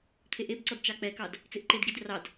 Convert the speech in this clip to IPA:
t̪ʰeʔebǀɔd t͡ʃɑk͡pɛkɑd | t͡seʔǃedɡid rɑd

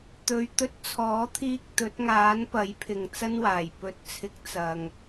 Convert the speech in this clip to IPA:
t̪ɵ˧ɥt̪ɵ˥t̚ t͡sʰɔː˨˥t̪ʰiː˧k̚ t̪ɵ˨˥t̚ŋaː˨˥n pɐ˨˥jpʰɪ˨ŋ t͡sɐ˥nwaː˨˩j pɵ˨˥t̚t͡sʰɪ˨˥k̚ t͡sɐ˨ŋ

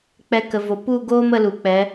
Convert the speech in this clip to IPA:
k͡pɛ˧kə˨vo˨ pu˦˨ɡoː˦m ə˦lu˨ k͡pɛ˨˦

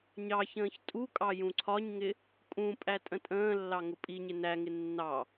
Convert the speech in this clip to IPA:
ɲɑçə̃ːç tʼukʼɑ jũǀʰɒɲŋɪ | kʼũpʼæ tʼə̃tʼə̃ːlːɑ ŋʊpʼiɲɪ næŋɪ nːɑ

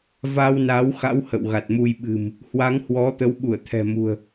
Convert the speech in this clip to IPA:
va˧wna˨˦wxa̰˧˥w hə̰˧˨wɣa˨˩t̚mu˧jɓɨ̤˨˩m | hwa˨˦ŋhwɔ˨˦ t̪ə˨˦wɓu˧˩ə̯ t̪ʰɛ̤˨˩mṳ˨˩ə̯

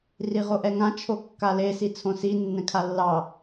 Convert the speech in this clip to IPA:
riʁoʔɛŋã t͡ʃʰokːale sit͡sʰõsi nːɛ̃kʰalːɑ

